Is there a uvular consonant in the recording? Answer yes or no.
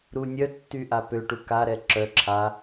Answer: no